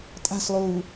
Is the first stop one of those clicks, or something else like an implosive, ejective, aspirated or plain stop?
ejective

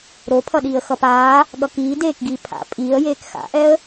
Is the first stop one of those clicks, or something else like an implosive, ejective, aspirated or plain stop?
aspirated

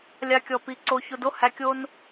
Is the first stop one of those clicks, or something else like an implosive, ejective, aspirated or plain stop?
plain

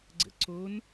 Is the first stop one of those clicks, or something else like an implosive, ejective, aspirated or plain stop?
click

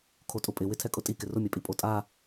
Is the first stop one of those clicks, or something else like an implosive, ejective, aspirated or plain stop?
aspirated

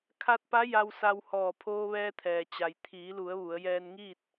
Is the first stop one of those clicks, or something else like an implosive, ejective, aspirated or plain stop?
aspirated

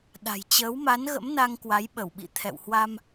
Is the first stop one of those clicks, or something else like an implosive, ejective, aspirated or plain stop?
implosive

